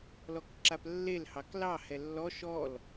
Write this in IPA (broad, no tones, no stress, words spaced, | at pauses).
lɔkǁaplːel hɑklɑ hɛlːɔ ʃɔl